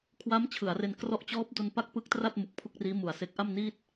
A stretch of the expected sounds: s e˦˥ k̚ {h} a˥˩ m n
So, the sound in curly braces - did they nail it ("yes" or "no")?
no